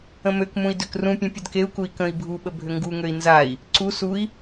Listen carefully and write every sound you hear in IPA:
ə̃møkmũi̯ døkrũpʲẽ pʲədkeu̯kui̯ kə̃i̯ bʱuɓə bʱʏŋɡuŋøi̯ nzai̯ | ǀu sui̯

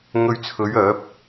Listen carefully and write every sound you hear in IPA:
ŋɵ˧ɥt͡sʰɵ˨˧ɥ œː˨˥p̚

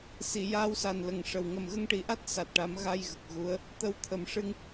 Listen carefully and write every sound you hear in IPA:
si˨˩˨ jaː˧wsa˨˩n lə˨˩ŋʂə˨˩w ŋə˨˩mɣə˧ŋʈi˨˩˦ʔa˦˥t̚ sa˨˩t̚ʈa˨˩˦m ɣa˧jɣə˨˩k̚ ɣu˧˥ə̯ | t̪ə˧w t̪ʰə˨˩mʂɨ˧ŋ

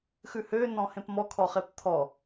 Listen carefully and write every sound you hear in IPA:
xʉhø nɔ̃hẽpmɔ kʰɔχept̪ʰɔ

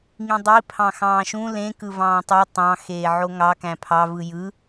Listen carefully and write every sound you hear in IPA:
ŋĩdˤi pʰɑ̃xɑ̃ːʃũ lẽ kɯvɑ̃ːtˤu tˤɑ̃ xeːʕoŋɑ kæ̃pʰɑ vɯjɯ

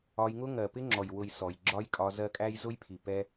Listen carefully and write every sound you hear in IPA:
ɒ˧jŋʊ˦ ŋɜ˨pɪ˦ŋ͡ǁɔ˨j wʊ˨j sɔ˨jɡ͡ǁɒ˦jkʼɒ˧ zɜ˧kʼæ˧j zʊ˦jpʰi˨ pɛ˧

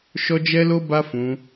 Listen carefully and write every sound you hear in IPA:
ʃɔ˦d͡ʒɛ˦lo˦ ba˦fũ˧

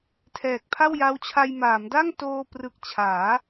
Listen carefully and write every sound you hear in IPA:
tʰɛː˨˩k̚pʰa˥˩wja˦˥wt͡ɕʰa˧j maː˩˦mda˥˩ŋ toː˧prɯ˨˩k̚t͡ɕʰaː˩˦

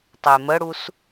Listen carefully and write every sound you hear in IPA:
tˤeməɽus

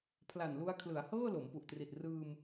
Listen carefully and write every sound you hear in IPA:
pʰla˨˩nlu˧a̯ kʰlɯ˩˦a̯hɤː˥˩ lo˩˦mpu˨˩ʔtri˨˩t̚ rɯː˧m

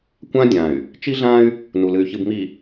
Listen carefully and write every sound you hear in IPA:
kʷã˦ dʲã˨y̯ | t͡ʃi˦ɮã˦y̯ | nu˨lɨ˨y̯ çɨ˨bmi˨

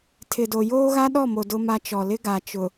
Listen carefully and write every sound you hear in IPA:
tʰɪ˨do˨ joː˦ɣa˦ɗɔ˦˨mo˨ dʊ˦ma˦ t͡ʃɔ˨lɪ˦ɡa˨ t͡ʃʊ˨

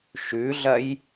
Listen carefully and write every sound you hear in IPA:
ʃʉɮɐj

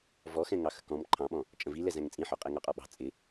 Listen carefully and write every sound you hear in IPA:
vɔxɛ̃ŋɑ xə̤kɔ̃m ǃʰɑ̃ɓɔ̃ | t͡ʃʼə̃vilɛ zæ̃ŋt͡sʼĩħɔ qʼɛŋɑqʼɔɓɑ̤ t͡sʼɪ

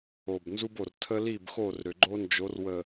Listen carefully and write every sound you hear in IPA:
o˨b nzu˦bo˨r tʰə˦li˦˨bxo˦˨r ɾʏ˨ɡ͡ǃo˦nd͡ʒo˨˦r wə˨

